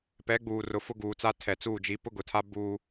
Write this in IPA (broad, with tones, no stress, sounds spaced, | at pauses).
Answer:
p ɛ˨˦ ɡ͡b uː˨ r ʊ˨ f ʊ˦ ɡ uː˨ t͡s a˦ tʰ ɛ˨ t͡s uː˦˨ d͡ʒ i˨˦ p ʊ˦ ɡ ʊ˨ tʰ a˦ b uː˦